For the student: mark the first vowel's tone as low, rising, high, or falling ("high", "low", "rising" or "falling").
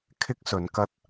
high